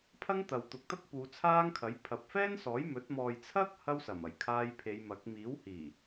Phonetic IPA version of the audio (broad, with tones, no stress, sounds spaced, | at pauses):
pʰ ɐ˥ ŋ t̪ ɐ˨ w t̪ ʊ˨ k̚ t̪ ɐ˥ k̚ p uː˨˧ t͡sʰ aː˥ ŋ kʰ ɐ˨˥ j pʰ ɐ˨ p̚ f ɛː˥ n s ɔː˨˥ j m ɵ˨˥ t̚ m ɔː˨ j t͡sʰ ɐ˥ k̚ h ɐ˧ w s ɐ˨˩ m ɐ˨˩ j kʰ aː˧ j pʰ e˨˧ j m ɐ˨˥ k̚ m iː˨˥ w h iː˨˩